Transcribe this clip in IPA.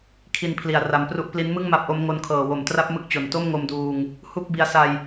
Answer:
kʰ i˧ n pʰ l i˨˩ a̯ r a˧ m p r u˦˥ ʔ p l i˦˥ n m ɯ˥˩ ŋ m a˦˥ p̚ ʔ o˦˥ m ŋ o˧ n kʰ ɤː˨˩ w o˩˦ m t r a˦˥ p̚ m ɯ˦˥ k̚ t͡ɕ o˨˩ n t o˥˩ m ŋ o˧ m d uː˧ ŋ | h u˥˩ k̚ b i˧ a̯ s a˧ j

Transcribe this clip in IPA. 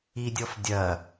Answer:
i dʲ ɔ f dʲ ɐ

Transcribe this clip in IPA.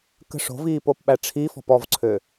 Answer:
k ə̤ ʂ o̤ v iː p o p ɓ æ ʈ͡ʂʰ i f ɔ̤ p ɔ v ǀʰ ø

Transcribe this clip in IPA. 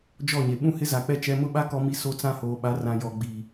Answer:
d͡ʒ ɔ˦˨ ɲ e˨ ɓ ũ˦ h ɪ˦ z a˨ k͡p ɛ˦ t͡ʃ ɛ˦ m ʊ˦ ɓ a˦ k ɔ˦ m i˦ s o˦ t͡s ã˦ h oː˨ ɓ a˨˦ r ã˨ j ɔ˨ ɡ͡b i˨

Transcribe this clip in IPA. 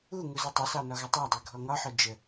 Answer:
u ŋ u z ə tˤ ʌ s ɑ n ɒ ɣ ʌ tˤ ɑ dˤ ɜ ɡʱ ɔ ŋ ɒ ħ ɔ d͡ʒ ə

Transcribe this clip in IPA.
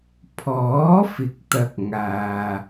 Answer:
pʰ ɔː˨˥ f ɪ˨˥ k̚ t̪ ɐ˨ k̚ ŋ aː˧

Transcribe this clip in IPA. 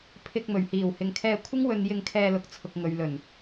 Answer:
pʰ ɪ˧ k̚ m ɵ˨˩ ɥ h iː˨˩ w h ɪ˨ ŋ kʰ ɛː˧ kʷʰ ɪ˥ ŋ w ɵ˧ n j ɪ˧ ŋ kʰ ɛː˧ l ʊ˨ k̚ t͡sʰ ʊ˨ k̚ ŋ ɵ˨ ɥ l ɵ˨˩ n

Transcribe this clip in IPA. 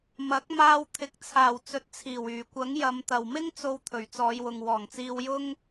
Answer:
m ɐ˨˥ k̚ m aː˧ w t̪ʰ ɪ˨˥ k̚ t͡sʰ aː˨˩ w t͡s ɵ˨ t̚ t͡sʰ iː˨˩ w yː˨˩ kʷ ɐ˨˥ ŋ j ɐ˨˧ m t̪ ɐ˨ w m ɪ˥ ŋ t͡s o˧ w t̪ʰ ɵ˨˩ ɥ t͡s ɔː˨˧ j w ʊ˨ ŋ w ɔː˨˩ ŋ t͡s iː˧ w j ʊ˥ ŋ

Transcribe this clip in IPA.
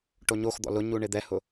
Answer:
ʈ o ɲ o x d̪ ɔ̰ l ʊ ɲ u ɳ ɪ d̪ ɛ h ʊ

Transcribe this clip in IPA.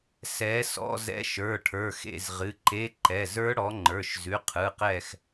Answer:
s ɛ˨˦ s ɔ̰˧˥˧ z ɛ̰˧˥˧ ʃ ə˞˩˧˩ ʈʰ ə˞˩˧˩ x ḛ˦˨ z ʁ ɨ˩˧˩ ǃ e˧˥˧ ǃ ɛ˩˧˩ z ə˞˦˥ ɽ ɔ˨˦ ŋ͡ǃ ə˞˩˧˩ ʃ z ʉ˩˧˩ qʰ ɯ˩˧˩ q ɛ˦˨ x

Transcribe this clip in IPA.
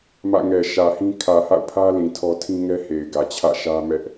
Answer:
m ä̰˦˨ ŋ ɛ˨ ʃ ä˨ h ĩ˦ kʰ ä˨ h a̰˦˨ ʊ̯ pʰ ä˦ l ĩ˨ tʰ ɔ˦ tʰ ĩ˦ ŋ ɛ˦ h e˨ ɪ̯ ɡ ä˨ t͡ɕʰ ä̰˦˨ ʃ ä˦ m ɛ˦ ʔ

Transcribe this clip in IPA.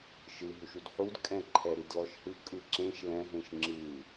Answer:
ʃ ɯ ɦ u ʃ u d ħ u d kʼ ɛ̃ ǃʰ ɛ ɾ i d l ɔ ʃ h ɯ kʼ ɯ ǁ ẽ ʃ l ɛ̃ ɦ ẽ ʃ ŋ͡ǁ ɯ

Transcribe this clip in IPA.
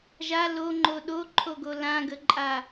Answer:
ʒ a l o ŋ͡ǃ o ɗ o ǃʰ o ɡ o l ã ɡ ə ǃʼ a

